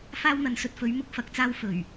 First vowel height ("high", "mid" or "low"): low